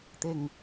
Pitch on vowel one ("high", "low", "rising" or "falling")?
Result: low